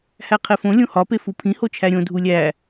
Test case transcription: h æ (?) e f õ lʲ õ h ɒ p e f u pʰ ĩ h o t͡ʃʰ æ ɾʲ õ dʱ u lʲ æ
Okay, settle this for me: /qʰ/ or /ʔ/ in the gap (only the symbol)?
qʰ